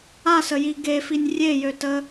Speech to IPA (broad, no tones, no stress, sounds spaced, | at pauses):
a s ə j i ɡ e f i nʲ rʲ e j ø t ə